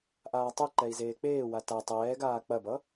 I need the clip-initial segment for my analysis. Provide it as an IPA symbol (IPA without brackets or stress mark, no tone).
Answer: ʔ